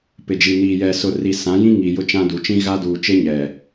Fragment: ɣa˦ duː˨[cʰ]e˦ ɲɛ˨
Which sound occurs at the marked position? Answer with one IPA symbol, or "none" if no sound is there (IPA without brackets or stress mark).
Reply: t͡ʃ